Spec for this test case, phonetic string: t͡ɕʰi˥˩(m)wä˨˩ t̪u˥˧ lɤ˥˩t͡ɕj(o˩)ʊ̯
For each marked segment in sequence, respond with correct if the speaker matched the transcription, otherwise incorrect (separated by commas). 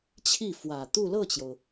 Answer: incorrect, correct